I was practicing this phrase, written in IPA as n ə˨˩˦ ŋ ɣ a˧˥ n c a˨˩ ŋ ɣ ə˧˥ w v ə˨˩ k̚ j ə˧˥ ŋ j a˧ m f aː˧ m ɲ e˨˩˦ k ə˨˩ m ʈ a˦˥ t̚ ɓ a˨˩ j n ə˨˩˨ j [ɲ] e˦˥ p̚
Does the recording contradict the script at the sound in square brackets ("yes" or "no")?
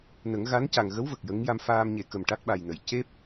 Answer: yes